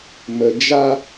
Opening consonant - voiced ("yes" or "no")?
yes